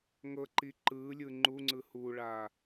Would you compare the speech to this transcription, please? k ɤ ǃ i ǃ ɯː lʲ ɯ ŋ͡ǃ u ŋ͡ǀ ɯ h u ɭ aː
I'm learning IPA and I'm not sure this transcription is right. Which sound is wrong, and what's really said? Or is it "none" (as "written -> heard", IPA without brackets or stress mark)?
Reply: k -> ŋ